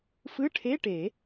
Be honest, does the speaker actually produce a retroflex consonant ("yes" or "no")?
yes